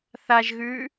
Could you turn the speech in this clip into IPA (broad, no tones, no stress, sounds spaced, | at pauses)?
θ a ʒ ɣ ʉ